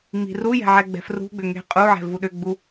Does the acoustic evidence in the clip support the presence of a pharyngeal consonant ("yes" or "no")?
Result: yes